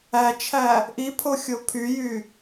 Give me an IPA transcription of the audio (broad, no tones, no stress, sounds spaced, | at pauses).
æ t͡ʃʰ æ | ʔ i pʰ o xʲ o pʰ y j y